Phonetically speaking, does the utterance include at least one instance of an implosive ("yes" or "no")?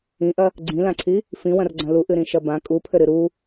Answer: no